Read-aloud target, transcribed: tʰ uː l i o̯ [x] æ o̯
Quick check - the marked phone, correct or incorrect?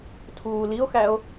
correct